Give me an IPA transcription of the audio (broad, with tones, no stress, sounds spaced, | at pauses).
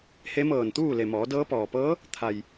h e˧˥ m ɤː˧˩ n t̪ uː˥˨ l e˩ m ɔː˩˧ d ɤː˧˥ p ɔː˩ p ɤː˧˥ | t̪ʰ a˩ j